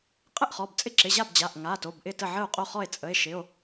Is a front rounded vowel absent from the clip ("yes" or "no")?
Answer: yes